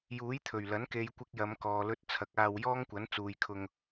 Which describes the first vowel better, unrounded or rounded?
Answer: rounded